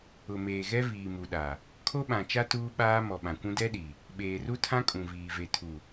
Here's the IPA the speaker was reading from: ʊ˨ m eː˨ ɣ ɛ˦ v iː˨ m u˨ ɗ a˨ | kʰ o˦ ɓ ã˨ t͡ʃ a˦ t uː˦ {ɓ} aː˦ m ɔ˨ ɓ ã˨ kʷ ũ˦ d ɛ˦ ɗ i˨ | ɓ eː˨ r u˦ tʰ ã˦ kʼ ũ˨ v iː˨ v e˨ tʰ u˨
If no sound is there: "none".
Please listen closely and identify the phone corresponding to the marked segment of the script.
ɓ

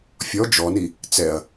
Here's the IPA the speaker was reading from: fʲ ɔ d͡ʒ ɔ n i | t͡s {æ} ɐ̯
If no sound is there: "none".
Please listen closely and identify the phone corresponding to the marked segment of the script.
ɛ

